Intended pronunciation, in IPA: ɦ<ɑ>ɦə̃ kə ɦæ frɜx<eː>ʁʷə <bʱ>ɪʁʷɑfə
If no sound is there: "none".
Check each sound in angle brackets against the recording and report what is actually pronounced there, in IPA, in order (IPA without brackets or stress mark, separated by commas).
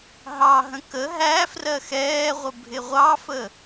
ɑ, ɛː, bʱ